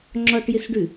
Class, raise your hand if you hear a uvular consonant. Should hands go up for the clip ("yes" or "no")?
no